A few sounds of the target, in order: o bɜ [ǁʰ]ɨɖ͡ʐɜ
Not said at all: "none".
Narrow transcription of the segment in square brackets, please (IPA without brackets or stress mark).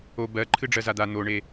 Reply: ǃʰ